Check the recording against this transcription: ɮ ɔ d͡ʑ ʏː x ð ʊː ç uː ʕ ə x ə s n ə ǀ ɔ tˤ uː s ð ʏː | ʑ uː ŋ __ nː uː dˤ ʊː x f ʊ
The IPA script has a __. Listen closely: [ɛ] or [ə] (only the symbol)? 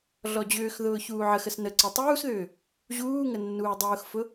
ə